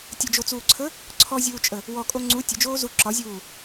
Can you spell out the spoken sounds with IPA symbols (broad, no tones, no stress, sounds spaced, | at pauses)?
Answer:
tʲ ə d͡ʒ o t͡s uː ǀʰ ə | ǀʰ ɔ zʲ uː t͡ʃʼ ə | w ɔ kʼ o ŋ͡ǀ u tʲ ə d͡ʒ oː z u ǁ ɒ zʲ uː